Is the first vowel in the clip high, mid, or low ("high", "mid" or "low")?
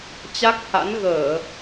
low